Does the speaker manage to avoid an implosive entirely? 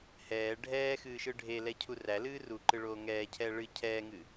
yes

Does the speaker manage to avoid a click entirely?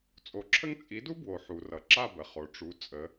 no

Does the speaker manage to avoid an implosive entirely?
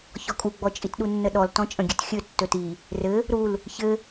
no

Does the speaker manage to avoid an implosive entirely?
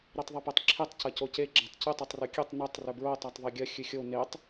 yes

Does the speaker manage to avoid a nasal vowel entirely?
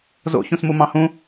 no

